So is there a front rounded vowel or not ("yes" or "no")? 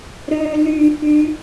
yes